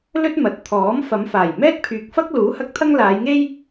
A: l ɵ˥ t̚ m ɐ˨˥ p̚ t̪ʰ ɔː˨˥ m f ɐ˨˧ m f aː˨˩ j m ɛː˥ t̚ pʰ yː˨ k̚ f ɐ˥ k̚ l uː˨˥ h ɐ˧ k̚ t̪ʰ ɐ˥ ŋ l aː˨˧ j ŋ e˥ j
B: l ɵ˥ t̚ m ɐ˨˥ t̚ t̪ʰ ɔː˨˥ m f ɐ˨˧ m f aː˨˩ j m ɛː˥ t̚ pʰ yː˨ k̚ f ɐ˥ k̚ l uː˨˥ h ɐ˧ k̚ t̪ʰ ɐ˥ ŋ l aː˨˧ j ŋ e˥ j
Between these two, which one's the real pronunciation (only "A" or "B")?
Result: B